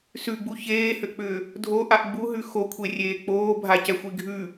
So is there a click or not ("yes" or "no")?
no